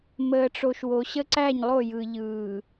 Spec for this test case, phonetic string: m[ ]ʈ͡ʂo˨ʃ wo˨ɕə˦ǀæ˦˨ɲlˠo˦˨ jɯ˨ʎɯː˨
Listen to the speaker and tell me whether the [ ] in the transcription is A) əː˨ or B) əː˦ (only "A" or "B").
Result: A